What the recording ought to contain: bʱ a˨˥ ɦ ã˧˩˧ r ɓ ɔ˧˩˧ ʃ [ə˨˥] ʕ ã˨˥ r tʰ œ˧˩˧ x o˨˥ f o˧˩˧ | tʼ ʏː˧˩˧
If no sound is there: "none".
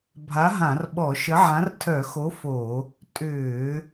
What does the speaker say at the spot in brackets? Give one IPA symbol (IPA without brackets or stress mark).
ə˨˥